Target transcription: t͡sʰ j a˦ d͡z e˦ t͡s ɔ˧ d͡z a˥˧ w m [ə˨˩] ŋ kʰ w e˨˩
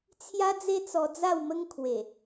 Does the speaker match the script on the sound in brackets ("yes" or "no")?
no